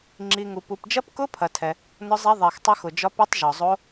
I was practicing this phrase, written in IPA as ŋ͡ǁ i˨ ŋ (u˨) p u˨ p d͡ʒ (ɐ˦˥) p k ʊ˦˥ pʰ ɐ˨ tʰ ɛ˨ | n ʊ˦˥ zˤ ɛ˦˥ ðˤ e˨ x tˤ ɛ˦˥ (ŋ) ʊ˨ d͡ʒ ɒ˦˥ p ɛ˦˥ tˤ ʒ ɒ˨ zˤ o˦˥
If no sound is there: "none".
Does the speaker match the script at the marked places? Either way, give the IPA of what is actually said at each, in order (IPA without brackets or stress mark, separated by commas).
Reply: u˨, ɐ˦˥, x